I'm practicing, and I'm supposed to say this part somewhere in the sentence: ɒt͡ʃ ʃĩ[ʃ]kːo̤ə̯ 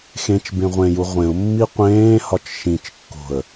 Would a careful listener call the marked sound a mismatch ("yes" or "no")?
yes